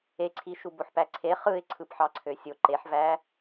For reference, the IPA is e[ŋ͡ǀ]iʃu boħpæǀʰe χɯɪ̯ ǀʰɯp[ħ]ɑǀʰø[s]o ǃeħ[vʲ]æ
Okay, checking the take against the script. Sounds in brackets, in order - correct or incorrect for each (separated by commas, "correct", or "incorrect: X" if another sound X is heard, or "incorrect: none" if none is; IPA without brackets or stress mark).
incorrect: ǀʰ, correct, incorrect: sʲ, incorrect: v